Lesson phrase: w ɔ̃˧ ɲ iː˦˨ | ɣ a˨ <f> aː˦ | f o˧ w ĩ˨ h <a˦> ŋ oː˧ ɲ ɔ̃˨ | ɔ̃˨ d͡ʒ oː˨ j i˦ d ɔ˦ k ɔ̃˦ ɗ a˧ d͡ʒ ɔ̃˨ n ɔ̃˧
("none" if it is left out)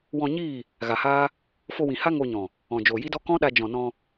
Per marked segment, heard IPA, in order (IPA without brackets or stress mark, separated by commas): h, a˦